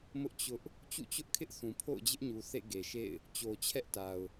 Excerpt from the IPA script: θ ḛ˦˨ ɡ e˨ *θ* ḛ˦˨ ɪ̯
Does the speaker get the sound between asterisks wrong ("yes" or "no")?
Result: yes